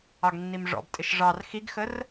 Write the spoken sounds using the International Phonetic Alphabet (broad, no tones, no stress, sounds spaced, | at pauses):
ɑ ɡ nː i m ʐ ɔ̰ b tʼ ɪ ʃ ʐ ɑ r x i ɡ x ə r